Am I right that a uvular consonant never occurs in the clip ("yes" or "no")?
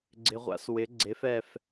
no